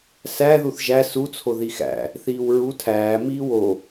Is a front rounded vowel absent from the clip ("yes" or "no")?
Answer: yes